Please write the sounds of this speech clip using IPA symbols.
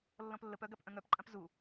lː ɔ̃ p lː ə p œ ɡ a p ʔ œ̃ ŋ œ p ǃʼ ã p z u

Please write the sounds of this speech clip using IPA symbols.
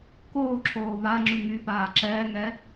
k oː ǁʰ oː β a ŋ͡ǁ y ŋ y p aː ǁ ɛː ŋ ɛ

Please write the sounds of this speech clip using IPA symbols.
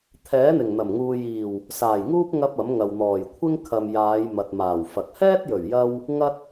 t̪ʰ ɛː˨˥ n̪ ɪ˨˩ ŋ n̪ ɐ˨˩ m ŋ uː˨ j iː˨˩ w | s aː˨˩ j ŋ uː˥ p̚ ŋ ɐ˥ p̚ ɐ˨˥ m ŋ ɐ˨ w n̪ ɔː˨˩ j kʷʰ ɪ˥ ŋ kʰ ɐ˨ m j aː˨˧ j m ɐ˨ t̚ m aː˨˩ w f ɐ˨ k̚ h ɛː˥ t̚ j ɵ˨˩ ɥ j ɐ˧ w | ŋ ɐ˥ t̚

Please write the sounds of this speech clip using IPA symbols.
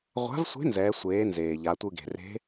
ʁʷ a̤˧˥ v sʷ e̤˧˥ n z ɛː˩˧ sʷ eː˩˧ n z eː˩ ʎ a˩˧ tʷ ɯ˧ ɡ e̤˩ r e̤˧˥

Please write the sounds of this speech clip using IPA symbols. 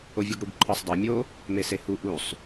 o vʲ o ɡ ɽ u ɡ ǃʰ ɒ sˤ dˤ æ mʲ o | m e s e h u ʔ u sˤ

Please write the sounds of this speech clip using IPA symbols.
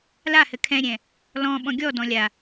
l a h ɘ kʰ ɛ̃ ɾʲ ɛ̃ | l ɔ̃ ɓ ɔ̃ ɡʲ ɔ d ɔ̃ lʲ a

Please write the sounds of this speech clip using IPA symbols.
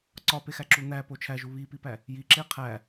ǀ ɒ p e x æ ǁ u n̪ æ p o t͡ʃʰ æ ʒ u β i p i p æ | j i ǁ e qʰ æ

